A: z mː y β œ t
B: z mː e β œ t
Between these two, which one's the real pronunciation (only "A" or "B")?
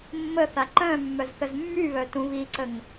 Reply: A